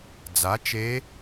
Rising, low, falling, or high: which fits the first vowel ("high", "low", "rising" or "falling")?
rising